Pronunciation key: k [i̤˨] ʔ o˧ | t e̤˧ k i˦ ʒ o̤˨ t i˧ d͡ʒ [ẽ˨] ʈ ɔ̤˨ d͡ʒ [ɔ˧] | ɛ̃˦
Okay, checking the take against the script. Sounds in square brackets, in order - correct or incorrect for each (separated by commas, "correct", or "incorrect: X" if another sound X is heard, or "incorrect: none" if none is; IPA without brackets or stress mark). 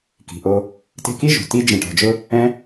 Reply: correct, correct, incorrect: ʊ˧